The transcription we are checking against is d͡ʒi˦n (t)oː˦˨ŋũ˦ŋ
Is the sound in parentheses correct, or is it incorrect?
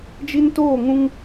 correct